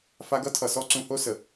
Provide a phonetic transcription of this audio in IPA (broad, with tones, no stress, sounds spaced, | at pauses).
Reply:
f a˧ ɡ ʌ˦ tʰ ʌ˨ s ɔ˦ ǀ ũ˧ h o˦ s ə˨